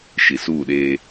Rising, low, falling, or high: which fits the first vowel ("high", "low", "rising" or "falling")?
low